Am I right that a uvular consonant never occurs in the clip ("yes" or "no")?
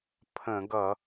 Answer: yes